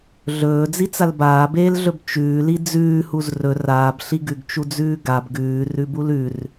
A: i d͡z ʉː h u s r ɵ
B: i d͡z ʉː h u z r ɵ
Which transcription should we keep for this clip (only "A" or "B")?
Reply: B